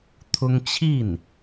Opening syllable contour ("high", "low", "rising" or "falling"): high